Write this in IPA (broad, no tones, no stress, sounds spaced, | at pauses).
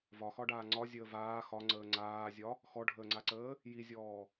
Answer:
v ɒ x ɒ ɖ aː ŋ͡ǀ ɒ zʲ əː v aː x ɒ ŋ͡ǀ əː ŋ͡ǀ aː zʲ ɒ | x ɔ ɖʱ əː ŋ͡ǀ a ǀ əː | j i zʲ ɔː